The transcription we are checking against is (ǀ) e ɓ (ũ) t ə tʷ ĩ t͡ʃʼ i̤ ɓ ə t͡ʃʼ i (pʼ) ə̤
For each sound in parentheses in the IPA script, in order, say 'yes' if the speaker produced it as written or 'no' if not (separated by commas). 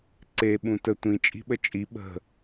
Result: yes, yes, no